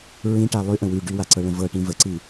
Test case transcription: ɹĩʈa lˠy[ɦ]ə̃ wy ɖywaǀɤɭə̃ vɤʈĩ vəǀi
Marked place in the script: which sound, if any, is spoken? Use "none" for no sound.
ʔ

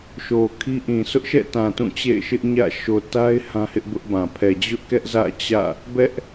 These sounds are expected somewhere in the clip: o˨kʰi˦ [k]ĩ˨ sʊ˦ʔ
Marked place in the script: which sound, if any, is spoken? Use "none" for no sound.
ʔ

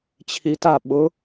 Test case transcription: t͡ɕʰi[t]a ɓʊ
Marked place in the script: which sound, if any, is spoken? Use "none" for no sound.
t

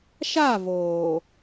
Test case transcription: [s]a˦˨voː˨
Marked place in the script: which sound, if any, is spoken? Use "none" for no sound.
ʃ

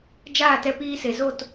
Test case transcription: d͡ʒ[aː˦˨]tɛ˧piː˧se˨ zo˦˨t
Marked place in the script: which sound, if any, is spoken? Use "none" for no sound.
aː˦˨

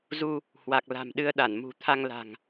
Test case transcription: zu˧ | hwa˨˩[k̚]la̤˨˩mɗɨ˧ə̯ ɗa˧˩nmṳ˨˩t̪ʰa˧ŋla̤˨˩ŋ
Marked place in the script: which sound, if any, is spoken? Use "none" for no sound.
k̚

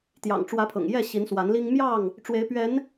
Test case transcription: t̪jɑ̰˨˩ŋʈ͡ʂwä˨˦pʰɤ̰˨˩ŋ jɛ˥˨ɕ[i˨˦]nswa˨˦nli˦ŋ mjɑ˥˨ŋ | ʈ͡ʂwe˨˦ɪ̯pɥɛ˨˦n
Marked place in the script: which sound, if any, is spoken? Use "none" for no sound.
i˨˦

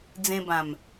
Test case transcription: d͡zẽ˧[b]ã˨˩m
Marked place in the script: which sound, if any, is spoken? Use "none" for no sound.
b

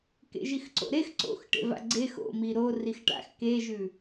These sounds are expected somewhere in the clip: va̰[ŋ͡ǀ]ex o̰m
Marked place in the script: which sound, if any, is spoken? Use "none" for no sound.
ɡ͡ǀ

